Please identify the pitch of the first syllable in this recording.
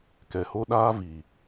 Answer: low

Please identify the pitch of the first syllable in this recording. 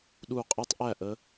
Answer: falling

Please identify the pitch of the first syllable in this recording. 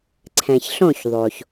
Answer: low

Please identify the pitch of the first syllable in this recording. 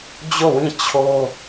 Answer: falling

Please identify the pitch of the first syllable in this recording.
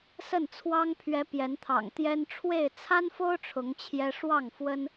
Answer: falling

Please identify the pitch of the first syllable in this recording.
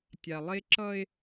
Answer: low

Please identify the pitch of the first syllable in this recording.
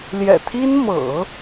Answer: low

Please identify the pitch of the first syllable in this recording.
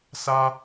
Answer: high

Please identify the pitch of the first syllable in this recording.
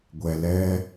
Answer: low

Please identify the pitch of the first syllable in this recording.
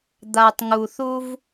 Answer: low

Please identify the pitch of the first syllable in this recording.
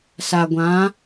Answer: low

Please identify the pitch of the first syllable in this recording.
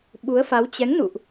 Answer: rising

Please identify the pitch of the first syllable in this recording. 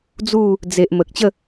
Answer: falling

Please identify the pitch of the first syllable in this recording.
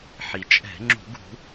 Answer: low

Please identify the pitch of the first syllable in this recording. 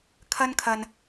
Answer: high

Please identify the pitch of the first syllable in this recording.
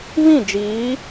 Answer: falling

